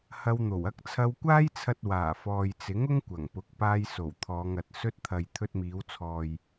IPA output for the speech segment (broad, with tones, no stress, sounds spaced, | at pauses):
h ɐ˧ w n̪ o˨˩ w ɐ˧ k̚ t͡sʰ ɐ˧ w kʷ aː˥ j t͡sʰ ɐ˧ t̚ w aː˨˩ f ɔː˨ j t͡s ɪ˨˥ ŋ ʊ˥ ŋ kʷ ɐ˨˩ ŋ p ʊ˨˥ k̚ p aː˧ j s o˨˩ w t̪ʰ ɔː˨˧ ŋ ɐ˨ t̚ s ɵ˧ t̚ t̪ʰ ɐ˨ j t̪ʰ ɵ˧ t̚ m iː˨˧ w t͡sʰ ɔː˨ j